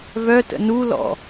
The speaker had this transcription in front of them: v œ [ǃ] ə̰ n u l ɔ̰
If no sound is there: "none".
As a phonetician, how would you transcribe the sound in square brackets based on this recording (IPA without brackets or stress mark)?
t